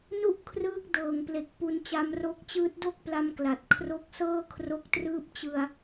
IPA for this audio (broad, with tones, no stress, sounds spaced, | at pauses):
n u˥˩ ʔ kʰ r ɯː˦˥ k̚ d ɤː˨˩ ŋ p l e˨˩ k̚ p u˧ n t͡ɕ a˧ m r o˦˥ k̚ t͡ɕ ɯː˦˥ t̚ d o˥˩ k̚ p l a˧ m k l a˨˩ t̚ kʰ r o˦˥ k̚ s ɤː˥˩ kʰ r o˦˥ k̚ t r ɯː˦˥ p̚ t͡ɕ ɯ˧ a̯